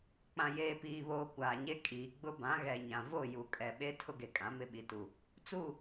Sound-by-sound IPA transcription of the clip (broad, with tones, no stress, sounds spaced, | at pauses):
k͡p ã˨ j eː˨ p iː˨ β oː˨ kʷ aː˨ ɲ e˦ kʼ iː˨ ɡ͡b ʊ˦ b ã˨˦ ɣ ɛ˨ ɲ ã˨ v o˦˨ j u˨ kʼ ɛ˨ ɓ e˦ tʰ ʊ˦ ɡ e˨ kʼ ã˨˦ m ɪ˦ ɓ i˨ t u˨ | t͡s u˦˨